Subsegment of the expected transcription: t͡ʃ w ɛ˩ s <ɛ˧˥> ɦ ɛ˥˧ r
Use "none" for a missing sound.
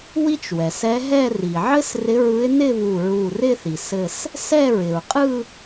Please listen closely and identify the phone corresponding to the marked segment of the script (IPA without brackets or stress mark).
ɛ˧˥